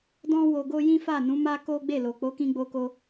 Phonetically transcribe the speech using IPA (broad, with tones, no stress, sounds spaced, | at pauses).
d ɔ̃˦ w o˧ ɡ o˦ j ĩ˦ f a˦˨ n ũ˨˦ m a˦ k o˦ ɡ͡b e˦˨ l o˨ k͡p o˨˦ k ĩ˧ ɡ͡b o˧ k o˧